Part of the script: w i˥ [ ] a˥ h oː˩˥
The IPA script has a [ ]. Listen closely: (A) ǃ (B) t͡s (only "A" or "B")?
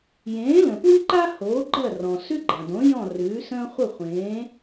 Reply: A